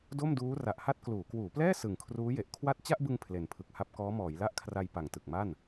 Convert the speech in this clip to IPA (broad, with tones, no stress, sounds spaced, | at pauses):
d o˥˩ m d uː˦˥ r a˨˩ ʔ h a˥˩ t̚ k l uː˩˦ k w uː˩˦ p l ɛː˥˩ s ɯ˨˩ ŋ kʰ r uː˦˥ j e˨˩ ʔ kʰ w a˥˩ t̚ t͡ɕ a˥˩ ʔ b ɯ˧ ŋ pʰ l e˨˩ n pʰ ɯ˨˩ k̚ h a˥˩ p̚ k ɔː˦˥ m ɔː˩˦ j l a˥˩ ʔ kʰ r a˧ j p a˨˩ ŋ t ɯ˨˩ k̚ m a˥˩ n